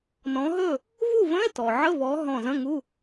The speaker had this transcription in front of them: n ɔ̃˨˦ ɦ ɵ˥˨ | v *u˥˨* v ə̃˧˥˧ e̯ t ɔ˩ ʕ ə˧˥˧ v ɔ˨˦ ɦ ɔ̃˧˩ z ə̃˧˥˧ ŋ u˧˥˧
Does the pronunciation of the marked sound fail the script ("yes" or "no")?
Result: no